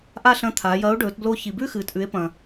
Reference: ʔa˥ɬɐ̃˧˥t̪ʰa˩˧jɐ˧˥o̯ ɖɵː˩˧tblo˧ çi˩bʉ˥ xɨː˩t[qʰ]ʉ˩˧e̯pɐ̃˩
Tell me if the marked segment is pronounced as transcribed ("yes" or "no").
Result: no